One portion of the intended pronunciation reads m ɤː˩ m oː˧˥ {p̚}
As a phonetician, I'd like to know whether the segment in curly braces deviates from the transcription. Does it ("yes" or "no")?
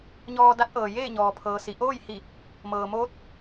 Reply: yes